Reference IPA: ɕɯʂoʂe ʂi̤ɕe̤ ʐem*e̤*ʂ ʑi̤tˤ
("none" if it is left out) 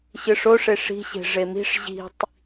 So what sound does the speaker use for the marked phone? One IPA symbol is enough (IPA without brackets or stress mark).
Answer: i̤